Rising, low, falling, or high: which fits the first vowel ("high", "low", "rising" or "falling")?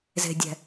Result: low